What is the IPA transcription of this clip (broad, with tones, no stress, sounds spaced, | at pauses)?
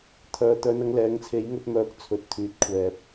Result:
t̪ʰ œː˨ t̪ œː˧ n ɐ˧ ŋ l ɛː˨˥ ŋ t͡sʰ e˨˥ j ŋ ɵ˧ t̚ m œː˧ k̚ t͡sʰ ɵ˨ t̚ t̪ʰ yː˨ t̚ kʷʰ ɛː˨ p̚